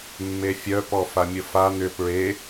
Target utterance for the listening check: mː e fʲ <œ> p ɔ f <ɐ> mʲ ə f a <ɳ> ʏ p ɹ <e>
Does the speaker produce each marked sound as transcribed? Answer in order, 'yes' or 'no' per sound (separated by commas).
yes, no, no, yes